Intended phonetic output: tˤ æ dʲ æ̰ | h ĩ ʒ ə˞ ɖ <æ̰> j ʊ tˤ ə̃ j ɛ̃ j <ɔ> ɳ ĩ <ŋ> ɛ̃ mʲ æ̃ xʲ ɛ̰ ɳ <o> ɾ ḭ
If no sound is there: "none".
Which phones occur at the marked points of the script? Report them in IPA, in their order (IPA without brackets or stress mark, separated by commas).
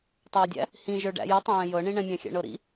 æ̰, ɤ, ɳ, ɤ